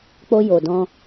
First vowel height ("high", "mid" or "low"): mid